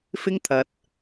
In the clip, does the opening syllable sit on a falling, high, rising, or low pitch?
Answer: high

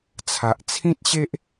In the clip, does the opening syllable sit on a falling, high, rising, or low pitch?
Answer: low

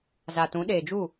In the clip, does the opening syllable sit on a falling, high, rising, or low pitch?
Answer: low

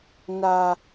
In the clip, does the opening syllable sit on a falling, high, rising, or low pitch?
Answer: high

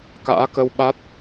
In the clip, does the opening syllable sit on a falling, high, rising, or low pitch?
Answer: rising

